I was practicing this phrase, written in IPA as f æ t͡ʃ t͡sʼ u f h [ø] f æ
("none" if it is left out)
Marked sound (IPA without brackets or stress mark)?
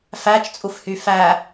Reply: y